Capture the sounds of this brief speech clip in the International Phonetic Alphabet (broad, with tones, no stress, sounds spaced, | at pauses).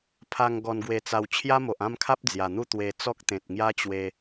pʰ a˧ ŋ ɡ ɔ˧ n ɡ w e˧ t͡s a˧ w t͡ɕʰ j a˦ m o˨ ʔ ã˥˧ m kʰ a˦ p̚ d͡z j a˨˩ n̪ u˥˧ t̪ w e˧ t͡s ɔ˦ k̚ t̪ ẽ˨ t̚ ŋ j a˦ t͡ɕ w e˧